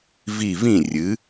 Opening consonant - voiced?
yes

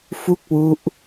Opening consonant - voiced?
no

